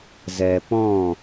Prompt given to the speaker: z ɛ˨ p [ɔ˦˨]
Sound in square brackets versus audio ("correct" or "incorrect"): incorrect